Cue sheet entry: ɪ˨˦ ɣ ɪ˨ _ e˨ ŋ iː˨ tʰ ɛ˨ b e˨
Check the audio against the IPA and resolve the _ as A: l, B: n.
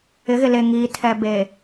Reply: A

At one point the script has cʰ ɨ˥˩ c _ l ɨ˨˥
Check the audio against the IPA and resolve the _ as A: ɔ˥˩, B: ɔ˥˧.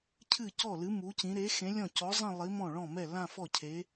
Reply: A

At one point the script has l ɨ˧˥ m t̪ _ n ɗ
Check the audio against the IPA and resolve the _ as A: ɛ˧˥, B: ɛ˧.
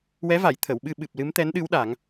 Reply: A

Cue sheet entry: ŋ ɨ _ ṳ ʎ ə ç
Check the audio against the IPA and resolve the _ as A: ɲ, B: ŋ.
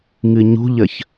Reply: A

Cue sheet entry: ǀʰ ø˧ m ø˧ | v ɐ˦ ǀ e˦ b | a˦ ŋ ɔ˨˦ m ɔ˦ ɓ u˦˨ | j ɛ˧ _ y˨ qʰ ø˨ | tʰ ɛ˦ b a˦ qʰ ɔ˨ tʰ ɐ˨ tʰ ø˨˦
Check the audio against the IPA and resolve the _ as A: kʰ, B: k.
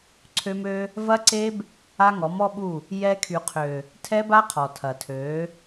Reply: A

